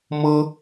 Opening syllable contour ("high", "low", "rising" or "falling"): high